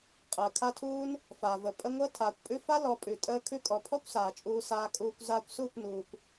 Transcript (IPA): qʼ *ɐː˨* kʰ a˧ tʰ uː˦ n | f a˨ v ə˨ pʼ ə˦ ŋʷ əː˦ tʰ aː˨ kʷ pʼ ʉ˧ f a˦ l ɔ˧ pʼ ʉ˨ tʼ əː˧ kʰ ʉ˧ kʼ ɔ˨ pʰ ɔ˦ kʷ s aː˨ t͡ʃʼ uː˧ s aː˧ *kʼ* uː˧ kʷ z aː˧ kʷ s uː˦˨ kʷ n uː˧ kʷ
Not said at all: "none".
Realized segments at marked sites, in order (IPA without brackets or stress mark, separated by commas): əː˨, kʼ